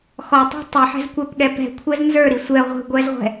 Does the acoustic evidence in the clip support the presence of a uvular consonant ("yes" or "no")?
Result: yes